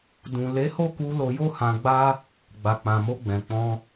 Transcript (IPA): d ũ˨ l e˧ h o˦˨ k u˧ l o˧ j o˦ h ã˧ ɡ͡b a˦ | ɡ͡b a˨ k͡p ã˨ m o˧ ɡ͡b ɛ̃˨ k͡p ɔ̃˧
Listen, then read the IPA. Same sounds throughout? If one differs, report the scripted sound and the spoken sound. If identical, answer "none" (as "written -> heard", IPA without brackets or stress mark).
e˧ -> e˨˦